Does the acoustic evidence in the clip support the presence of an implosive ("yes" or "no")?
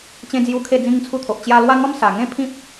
no